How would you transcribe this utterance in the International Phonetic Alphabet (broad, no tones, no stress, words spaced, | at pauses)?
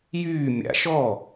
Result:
jyː mʲa̰ʃɔ